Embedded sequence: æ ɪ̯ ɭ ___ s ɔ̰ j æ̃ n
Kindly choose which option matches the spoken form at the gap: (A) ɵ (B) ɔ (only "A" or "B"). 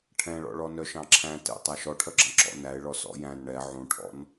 B